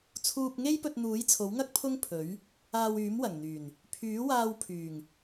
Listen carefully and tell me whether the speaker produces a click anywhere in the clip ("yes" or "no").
no